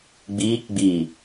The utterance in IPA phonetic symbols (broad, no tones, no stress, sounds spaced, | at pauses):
ɡ͡b iː k ɡ͡b iː